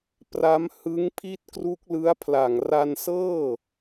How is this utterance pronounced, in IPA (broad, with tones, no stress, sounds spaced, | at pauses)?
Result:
p r a˦˥ m h ɯ˦˥ ŋ pʰ i˥˩ t̚ k r u˦˥ k̚ l ɯ˦˥ a̯ pʰ l a˨˩ ŋ r a˧ n s ɤː˥˩